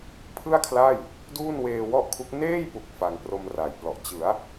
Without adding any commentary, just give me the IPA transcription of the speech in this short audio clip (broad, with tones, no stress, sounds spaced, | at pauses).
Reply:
pʰ ɯ˥˩ a̯ kʰ l a˥˩ j | d uː˥˩ n w eː˧ w ɔ˥˩ ʔ kʰ u˦˥ k̚ n eː˥˩ j p u˨˩ k̚ f a˧ ŋ p r o˧ m r a˩˦ j p l ɔ˨˩ ʔ t͡ɕ ɯ˩˦ a̯